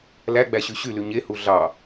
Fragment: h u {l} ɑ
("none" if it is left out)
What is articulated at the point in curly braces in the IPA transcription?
ɮ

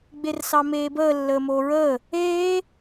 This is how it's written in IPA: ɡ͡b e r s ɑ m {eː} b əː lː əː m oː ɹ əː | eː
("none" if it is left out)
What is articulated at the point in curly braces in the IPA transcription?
eː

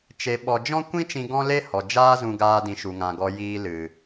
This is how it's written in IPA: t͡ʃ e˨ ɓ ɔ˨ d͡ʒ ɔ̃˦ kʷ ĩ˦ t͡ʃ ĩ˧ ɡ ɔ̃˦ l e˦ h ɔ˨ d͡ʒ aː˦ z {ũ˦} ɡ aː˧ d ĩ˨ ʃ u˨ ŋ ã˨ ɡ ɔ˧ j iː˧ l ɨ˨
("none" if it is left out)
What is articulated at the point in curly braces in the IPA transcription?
ũ˧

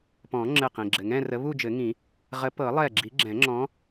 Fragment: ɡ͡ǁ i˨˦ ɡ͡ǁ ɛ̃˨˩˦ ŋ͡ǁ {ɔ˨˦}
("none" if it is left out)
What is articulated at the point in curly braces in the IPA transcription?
ɔ̃˨˦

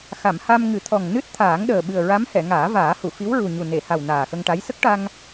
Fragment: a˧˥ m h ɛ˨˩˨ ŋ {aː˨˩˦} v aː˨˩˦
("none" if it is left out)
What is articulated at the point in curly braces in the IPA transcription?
aː˨˩˦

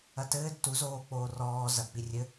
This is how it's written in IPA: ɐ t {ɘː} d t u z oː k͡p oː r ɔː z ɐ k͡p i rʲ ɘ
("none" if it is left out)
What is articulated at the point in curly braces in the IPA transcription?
ɘː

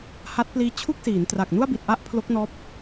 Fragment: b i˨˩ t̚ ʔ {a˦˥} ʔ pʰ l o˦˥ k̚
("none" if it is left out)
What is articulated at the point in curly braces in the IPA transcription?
a˦˥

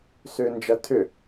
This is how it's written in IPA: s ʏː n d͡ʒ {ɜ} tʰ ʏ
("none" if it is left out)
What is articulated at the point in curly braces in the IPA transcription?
ɜ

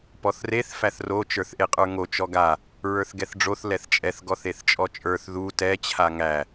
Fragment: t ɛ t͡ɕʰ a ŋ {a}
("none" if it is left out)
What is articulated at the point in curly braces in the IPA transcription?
æ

